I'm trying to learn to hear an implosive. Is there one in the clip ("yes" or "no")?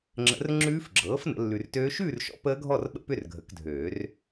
yes